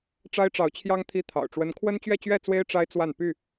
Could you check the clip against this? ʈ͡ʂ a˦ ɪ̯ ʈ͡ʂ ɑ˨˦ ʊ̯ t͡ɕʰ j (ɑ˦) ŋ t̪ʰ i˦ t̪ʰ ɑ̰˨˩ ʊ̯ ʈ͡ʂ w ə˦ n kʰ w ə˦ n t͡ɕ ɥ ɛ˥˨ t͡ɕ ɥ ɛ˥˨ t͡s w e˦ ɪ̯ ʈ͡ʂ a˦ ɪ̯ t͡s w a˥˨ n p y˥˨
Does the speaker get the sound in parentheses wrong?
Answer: no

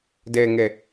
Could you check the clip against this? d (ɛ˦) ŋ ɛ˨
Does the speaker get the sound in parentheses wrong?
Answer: yes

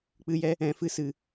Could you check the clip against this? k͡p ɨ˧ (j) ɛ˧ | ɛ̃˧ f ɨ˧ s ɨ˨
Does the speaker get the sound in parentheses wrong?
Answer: no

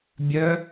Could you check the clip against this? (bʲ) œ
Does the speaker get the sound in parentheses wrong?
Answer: no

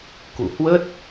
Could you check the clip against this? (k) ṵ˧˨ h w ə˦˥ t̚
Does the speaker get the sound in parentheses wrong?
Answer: no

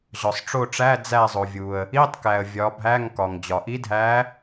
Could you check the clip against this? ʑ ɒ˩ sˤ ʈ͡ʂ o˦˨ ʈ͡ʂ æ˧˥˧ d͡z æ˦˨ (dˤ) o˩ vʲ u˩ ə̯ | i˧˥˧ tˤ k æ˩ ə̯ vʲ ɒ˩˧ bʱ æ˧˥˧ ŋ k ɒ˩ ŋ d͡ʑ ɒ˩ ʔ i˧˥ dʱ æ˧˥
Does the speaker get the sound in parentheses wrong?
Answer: yes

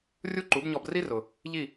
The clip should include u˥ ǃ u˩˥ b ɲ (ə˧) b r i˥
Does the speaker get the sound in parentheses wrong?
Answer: yes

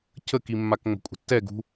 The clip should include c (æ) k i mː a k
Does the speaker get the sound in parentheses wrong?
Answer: yes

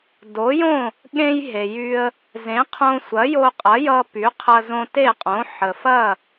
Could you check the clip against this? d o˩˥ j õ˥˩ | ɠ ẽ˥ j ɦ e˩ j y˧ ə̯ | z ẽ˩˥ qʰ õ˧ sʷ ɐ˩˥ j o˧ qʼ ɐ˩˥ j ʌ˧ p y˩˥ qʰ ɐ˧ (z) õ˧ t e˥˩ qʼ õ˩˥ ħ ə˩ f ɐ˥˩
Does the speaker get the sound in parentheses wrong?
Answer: no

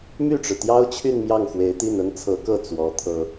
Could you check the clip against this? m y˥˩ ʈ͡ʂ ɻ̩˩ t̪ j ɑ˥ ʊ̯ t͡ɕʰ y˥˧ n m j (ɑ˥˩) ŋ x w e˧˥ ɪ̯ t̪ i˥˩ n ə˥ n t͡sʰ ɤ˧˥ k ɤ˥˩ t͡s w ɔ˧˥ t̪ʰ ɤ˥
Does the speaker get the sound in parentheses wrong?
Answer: no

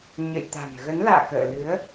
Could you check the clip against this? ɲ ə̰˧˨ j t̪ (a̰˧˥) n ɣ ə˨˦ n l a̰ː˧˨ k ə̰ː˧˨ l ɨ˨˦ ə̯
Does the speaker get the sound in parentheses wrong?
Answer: yes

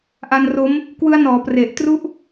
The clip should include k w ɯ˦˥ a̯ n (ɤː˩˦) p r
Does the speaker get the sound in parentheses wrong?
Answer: yes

